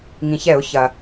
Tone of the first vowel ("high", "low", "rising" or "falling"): low